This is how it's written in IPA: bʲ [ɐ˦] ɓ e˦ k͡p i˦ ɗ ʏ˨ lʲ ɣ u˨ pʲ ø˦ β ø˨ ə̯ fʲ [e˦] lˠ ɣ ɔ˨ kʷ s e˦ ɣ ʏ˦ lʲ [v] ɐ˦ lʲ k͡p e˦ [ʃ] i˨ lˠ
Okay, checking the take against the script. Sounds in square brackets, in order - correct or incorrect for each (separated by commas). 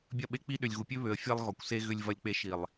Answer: correct, correct, correct, correct